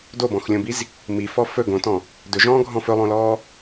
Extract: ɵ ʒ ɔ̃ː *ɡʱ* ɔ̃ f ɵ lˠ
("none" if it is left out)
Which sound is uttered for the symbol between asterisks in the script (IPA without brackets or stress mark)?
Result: ɡʱ